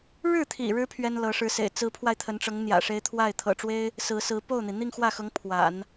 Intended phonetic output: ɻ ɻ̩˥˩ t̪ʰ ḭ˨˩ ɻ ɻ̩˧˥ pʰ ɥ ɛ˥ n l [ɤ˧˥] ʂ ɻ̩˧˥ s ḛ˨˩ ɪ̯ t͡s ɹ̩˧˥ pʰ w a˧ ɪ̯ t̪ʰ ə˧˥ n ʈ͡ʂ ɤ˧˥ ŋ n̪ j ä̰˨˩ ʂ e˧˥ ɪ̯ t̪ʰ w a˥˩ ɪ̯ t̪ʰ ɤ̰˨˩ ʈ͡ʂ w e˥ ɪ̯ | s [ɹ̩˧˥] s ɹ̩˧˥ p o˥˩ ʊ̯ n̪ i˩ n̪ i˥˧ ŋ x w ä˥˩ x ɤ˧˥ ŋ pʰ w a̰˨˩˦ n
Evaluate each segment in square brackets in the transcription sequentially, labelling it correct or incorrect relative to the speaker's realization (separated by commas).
correct, correct